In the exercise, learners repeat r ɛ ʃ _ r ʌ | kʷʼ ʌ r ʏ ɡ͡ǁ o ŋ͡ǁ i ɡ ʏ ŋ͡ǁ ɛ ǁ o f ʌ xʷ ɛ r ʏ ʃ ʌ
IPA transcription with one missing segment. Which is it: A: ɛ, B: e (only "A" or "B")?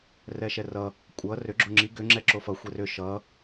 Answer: A